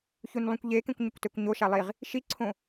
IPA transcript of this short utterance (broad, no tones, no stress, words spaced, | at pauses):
çunlˠũkʷʎekẽkʷ ɲɪkʷtɛkʷɲo ʃalˠiʁ | ʃiǀʰõ